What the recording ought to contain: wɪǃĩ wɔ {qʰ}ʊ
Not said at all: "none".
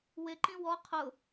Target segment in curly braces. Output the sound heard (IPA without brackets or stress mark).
qʰ